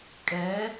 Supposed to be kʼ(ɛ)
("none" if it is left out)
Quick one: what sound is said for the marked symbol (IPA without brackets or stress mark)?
ɛ